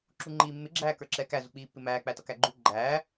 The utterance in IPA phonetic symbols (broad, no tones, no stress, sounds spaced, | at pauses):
ǁ u ŋ͡ǃ iː mː ɪ ɡ͡ǁ æː k ə˞ ǁ ɛː k æ z u k͡p iː pː ɪ m æː k͡p æ t ʌ k æ ɡ͡ǃ u ɡ͡ǃ æː